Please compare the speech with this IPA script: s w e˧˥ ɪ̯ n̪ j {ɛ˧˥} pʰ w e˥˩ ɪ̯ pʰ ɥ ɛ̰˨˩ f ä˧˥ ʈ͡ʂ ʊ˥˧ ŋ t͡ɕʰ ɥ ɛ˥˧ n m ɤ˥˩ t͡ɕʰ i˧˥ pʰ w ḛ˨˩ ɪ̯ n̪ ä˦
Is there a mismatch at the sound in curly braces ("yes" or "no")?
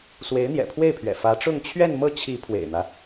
yes